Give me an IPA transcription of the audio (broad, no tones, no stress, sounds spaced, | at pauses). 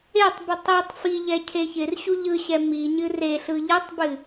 e tˤ b ɯ tˤ i tˤ f i ʎ ɛ cʰ e ç ɪ r ɕ u ʎ ɯ ɕ ɛ m i ɲ ɨ r e ɬ ɯ ʎ ɯ tˤ b ɨ